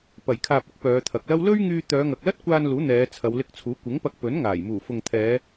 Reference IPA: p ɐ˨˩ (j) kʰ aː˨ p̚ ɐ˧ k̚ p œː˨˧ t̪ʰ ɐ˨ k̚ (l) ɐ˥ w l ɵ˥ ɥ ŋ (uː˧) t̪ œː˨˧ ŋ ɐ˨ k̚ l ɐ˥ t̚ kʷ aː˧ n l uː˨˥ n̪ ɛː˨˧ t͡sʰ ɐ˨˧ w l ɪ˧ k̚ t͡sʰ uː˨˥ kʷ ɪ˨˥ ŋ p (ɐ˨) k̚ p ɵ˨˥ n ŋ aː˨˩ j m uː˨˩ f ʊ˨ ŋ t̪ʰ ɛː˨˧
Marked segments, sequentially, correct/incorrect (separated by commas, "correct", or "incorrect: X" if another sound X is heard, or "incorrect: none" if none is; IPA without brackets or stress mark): correct, correct, incorrect: yː˧, incorrect: ɐ˧